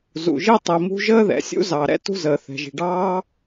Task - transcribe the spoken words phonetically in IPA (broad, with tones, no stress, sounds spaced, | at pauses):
z ṵ˩ ʒ i˥ tˤ i˩ m ṳ˥ ʒ əː˥ ð ɛ̰˩ sʲ ṵ˥ z ɑ˩ ɾ ɛ̰˥ t ṳ˥ z əː˩ θ ɛ̤˩ ʒ i̤˩ ɖ ɑː˥